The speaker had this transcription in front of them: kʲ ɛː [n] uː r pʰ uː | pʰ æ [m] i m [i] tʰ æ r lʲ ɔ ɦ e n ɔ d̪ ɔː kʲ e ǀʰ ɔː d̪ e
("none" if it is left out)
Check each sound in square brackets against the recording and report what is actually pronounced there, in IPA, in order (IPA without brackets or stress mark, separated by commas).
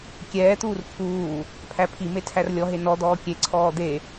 t̪, pʰ, e